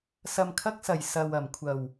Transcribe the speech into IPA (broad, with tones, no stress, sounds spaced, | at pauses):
s ɐ˨ m kʰ ɐ˧ k̚ s ɐ˨˩ j s ɐ˨ w ɐ˨˩ m kʷʰ ɐ˨˩ w